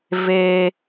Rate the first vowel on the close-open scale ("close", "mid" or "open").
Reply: mid